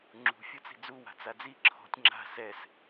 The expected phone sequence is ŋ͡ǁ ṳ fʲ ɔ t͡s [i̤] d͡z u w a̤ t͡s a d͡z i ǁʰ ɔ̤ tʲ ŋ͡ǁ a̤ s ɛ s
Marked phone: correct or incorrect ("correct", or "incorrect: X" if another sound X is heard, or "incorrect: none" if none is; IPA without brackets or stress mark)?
correct